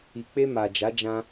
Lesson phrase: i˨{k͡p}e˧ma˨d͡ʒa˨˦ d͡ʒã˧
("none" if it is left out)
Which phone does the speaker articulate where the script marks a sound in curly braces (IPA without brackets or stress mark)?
k͡p